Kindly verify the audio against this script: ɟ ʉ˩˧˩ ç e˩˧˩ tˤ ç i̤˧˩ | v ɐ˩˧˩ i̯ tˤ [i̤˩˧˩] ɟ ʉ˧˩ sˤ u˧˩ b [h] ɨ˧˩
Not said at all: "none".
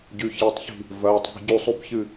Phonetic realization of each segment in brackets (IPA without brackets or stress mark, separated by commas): i̤˩˧˩, ç